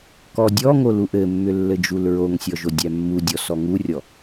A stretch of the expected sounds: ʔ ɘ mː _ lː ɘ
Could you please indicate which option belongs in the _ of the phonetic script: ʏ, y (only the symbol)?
ʏ